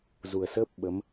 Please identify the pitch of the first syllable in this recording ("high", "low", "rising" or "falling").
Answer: low